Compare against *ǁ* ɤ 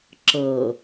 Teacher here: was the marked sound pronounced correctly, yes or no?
yes